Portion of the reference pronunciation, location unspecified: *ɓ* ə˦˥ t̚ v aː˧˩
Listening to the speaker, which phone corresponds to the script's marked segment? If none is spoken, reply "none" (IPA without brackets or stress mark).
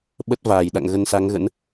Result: ɓ